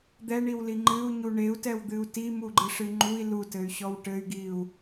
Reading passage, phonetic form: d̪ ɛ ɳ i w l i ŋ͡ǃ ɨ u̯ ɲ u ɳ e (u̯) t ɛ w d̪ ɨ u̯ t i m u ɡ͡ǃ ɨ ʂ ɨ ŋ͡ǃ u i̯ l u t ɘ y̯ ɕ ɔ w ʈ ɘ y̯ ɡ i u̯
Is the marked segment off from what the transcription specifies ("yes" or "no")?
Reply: no